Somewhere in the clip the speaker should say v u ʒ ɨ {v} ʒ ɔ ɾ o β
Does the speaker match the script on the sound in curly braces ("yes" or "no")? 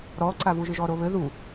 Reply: no